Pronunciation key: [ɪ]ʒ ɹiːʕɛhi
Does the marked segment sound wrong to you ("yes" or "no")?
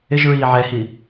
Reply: no